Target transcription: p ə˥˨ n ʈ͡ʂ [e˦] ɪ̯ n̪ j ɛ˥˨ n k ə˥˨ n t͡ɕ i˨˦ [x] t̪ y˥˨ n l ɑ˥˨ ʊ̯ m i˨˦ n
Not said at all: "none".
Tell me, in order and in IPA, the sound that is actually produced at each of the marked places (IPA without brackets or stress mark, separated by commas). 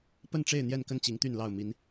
e˥˨, ŋ